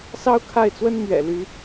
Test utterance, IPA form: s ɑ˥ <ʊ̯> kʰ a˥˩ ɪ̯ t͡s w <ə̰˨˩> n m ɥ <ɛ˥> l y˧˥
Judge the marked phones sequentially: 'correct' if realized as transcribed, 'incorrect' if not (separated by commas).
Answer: correct, incorrect, incorrect